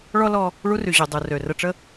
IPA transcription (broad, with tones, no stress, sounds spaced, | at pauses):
ɭ ɔ˥ l ɔ˧ | ɭ u˥ r y˩ ʑ y˩ dˤ u˩ r ø˩ r ə˧ ʈ͡ʂ ə˥